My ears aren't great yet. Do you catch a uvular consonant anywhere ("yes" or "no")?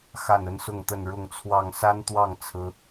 no